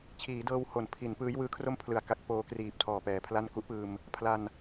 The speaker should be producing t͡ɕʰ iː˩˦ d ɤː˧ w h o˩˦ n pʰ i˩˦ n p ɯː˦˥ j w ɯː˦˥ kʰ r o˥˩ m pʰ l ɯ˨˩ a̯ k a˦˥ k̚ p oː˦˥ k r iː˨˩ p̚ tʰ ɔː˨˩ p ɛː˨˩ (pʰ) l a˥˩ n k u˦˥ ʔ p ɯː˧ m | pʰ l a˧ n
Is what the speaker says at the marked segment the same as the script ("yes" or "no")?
yes